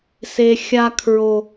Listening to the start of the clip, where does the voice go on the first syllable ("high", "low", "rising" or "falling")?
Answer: low